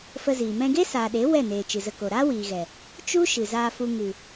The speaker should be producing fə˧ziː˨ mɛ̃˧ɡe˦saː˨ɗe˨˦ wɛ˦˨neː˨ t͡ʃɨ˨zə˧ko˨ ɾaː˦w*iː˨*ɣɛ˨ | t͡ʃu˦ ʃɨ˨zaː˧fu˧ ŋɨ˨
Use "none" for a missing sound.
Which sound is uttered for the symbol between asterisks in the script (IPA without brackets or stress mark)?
iː˨